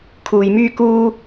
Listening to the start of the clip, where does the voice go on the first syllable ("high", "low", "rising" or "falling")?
low